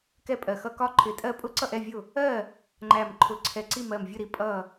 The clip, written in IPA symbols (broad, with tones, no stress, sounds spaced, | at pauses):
k ɛ˥˨ pʼ ɜ˧˩ x ʌ˥˨ k ɒ˥˨ ǃʰ ɪ˧˩ tʼ ɜ˥˨ pʼ ʊ˥˨ ǀ ʌ˥˨ ʔ ɛ˥˨ vʲ ʊ˥˨ | ɜ˥˨ | ŋ͡ǃ æ˧˩ m ǃʰ ʊ˧˩ ǀʰ ɛ˧˩ ǀ i˥˨ m ɜ˧˩ m vʲ ʊ˥˨ ɾ i˧˩ pʼ ʌ˥˨